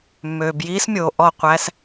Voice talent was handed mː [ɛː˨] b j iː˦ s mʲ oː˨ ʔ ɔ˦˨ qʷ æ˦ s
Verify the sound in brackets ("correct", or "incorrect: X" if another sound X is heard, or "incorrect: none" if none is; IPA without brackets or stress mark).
incorrect: øː˨